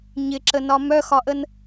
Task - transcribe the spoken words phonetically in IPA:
ɲ ɪ ǁ ə n ɒ m œ x ɒ ʔ ə n

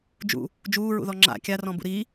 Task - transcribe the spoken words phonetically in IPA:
d͡ʒ ṵ | d͡ʒ uː ɹ ṵ ð ɔ ŋ͡ǁ a̰ kʲ a r ɔ̃ b ṵ ɾ iː

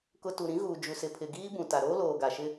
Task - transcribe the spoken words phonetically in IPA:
k ʊ˨ t u˨ ɾ ĩ˨˦ ɣ uː˨ d͡ʒ u˨ s ɪ˨ pʰ ɪ˨ ɡ iː˦ b ũ˨ t a˨ ɾ oː˦ l oː˨ ɡ a˨ ʃ ɪ˦

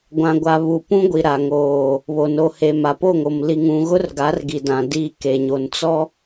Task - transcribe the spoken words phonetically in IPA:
ɡʷ ã˨ ɡʷ a˨ β u˨ p ũ˦ ɡʷ i˨ ɾ a˨ ŋ oː˨ | β o˨ n o˨ h e˨ m a˨ p o˦˨ ŋ o˨ m l i˨ ŋ ũ˨ ɣ ʊ˦ r ɡ a˨˦ r ɡ i˨ d ã˨ d i˦˨ k e˨ ɲ o˨ n t͡s ɔ˦

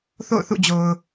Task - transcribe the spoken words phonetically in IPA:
θ o̰˦˨ ʊ̯ θ ṵ˦˨ d͡ʑ o˨ ʊ̯

